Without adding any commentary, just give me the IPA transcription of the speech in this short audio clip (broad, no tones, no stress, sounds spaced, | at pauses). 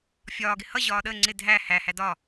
fʲ ɒː ɡ ɪ h ʌ ʑ ɒː ɗ əː ŋ͡ǀ ɪ dʱ æ h æ h æ d ɒ